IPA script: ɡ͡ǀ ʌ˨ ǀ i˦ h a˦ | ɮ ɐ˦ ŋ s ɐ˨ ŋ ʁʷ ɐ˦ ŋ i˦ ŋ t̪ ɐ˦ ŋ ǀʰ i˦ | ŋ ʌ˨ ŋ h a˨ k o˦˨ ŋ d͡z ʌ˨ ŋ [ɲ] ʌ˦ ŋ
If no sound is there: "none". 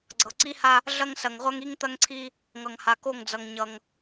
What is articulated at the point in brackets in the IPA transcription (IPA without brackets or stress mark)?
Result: ɲ